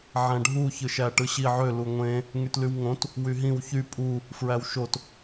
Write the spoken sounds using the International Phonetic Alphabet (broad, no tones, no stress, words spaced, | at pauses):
ʕæ̃ɖʱu çɯʃæʈɯɕi ʕø luŋʷẽ | ŋytlywŋõt | wyɦĩw çy pʼu | fɹæwʃot